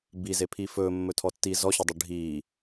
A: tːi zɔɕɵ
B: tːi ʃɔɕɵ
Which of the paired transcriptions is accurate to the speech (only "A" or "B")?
A